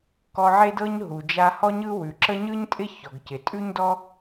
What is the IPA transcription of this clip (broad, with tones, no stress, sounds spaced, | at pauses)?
k ɔ˧ ʕ e˥ d ɤ˥ ɲ ɦ u˩ d͡ʒ a˧ h ɔ˥ ɲ ɯ˥ w ʉ˩ ǁ ə˥ ɲ ɯ˥ ɲ tʼ ɪ˥ ç ɔ˩ ɡ c ɪ˩ tʼ ʉ˥ ɲ d ɔ˥